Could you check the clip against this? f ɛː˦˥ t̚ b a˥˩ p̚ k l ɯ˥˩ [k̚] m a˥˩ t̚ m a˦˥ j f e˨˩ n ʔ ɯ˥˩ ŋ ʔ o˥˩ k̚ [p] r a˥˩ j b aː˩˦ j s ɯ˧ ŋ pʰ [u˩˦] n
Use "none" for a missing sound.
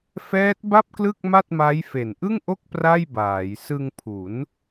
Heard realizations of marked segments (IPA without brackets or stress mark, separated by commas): k̚, p, u˩˦